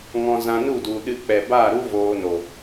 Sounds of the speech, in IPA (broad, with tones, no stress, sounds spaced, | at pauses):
ŋ ɔ̃˧ z ã˧ n u˦˨ d u˨ ɗ ɨ˧ k͡p ɛ˨ b aː˦˨ ɾ u˦ v oː˧ n o˨